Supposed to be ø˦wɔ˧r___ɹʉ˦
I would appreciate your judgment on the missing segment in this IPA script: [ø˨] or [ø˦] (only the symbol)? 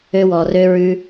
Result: ø˦